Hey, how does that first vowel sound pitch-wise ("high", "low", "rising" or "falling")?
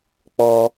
high